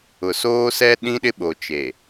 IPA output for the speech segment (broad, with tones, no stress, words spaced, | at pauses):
ʊ˨ soː˦sɛ˦ ɗĩ˦ɗɪ˦ɓo˨ t͡ʃe˨